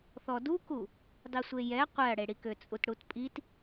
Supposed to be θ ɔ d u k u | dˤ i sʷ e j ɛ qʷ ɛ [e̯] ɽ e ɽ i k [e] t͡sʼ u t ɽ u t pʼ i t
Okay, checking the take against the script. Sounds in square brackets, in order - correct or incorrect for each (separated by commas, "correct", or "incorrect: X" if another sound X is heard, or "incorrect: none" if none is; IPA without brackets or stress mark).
incorrect: ɐ̯, incorrect: ø